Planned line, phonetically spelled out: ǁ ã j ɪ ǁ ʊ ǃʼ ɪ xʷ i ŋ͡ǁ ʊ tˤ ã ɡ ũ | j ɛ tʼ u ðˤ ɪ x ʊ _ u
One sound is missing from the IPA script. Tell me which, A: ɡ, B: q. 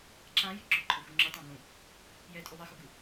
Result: A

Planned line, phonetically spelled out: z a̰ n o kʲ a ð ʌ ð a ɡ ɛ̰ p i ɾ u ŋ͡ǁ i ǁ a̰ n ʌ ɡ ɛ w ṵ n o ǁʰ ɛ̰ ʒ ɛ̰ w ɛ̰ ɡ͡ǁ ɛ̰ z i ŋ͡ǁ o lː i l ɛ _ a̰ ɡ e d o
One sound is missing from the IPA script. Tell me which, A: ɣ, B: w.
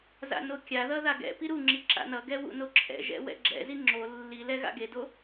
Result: A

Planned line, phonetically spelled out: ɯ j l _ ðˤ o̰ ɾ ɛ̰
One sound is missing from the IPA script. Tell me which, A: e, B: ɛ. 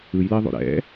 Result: B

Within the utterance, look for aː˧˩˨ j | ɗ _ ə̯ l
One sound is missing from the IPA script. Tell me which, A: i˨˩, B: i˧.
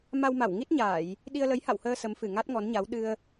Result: B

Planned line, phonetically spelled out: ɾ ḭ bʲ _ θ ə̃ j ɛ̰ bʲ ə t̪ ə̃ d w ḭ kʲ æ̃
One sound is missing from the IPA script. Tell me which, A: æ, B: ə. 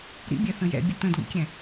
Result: A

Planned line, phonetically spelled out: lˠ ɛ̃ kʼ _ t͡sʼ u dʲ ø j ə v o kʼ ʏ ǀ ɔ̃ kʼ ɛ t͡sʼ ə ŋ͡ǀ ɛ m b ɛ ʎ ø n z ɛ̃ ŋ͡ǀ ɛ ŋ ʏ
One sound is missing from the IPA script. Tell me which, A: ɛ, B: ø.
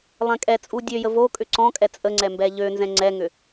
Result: A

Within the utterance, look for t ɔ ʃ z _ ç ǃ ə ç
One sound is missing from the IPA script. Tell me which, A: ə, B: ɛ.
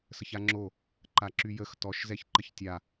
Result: B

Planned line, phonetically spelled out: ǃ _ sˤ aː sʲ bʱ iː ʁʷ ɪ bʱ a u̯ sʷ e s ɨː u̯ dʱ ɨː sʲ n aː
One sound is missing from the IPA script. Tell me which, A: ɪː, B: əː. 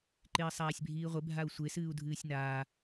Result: A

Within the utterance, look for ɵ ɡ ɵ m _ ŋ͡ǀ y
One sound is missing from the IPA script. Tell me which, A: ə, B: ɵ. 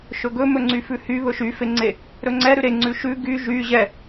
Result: B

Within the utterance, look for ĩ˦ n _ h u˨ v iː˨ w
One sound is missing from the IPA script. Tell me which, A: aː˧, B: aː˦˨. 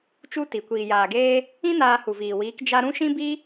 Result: A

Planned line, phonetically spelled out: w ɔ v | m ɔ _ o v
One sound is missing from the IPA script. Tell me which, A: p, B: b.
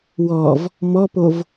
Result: A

